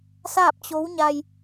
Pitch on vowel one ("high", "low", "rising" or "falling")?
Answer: falling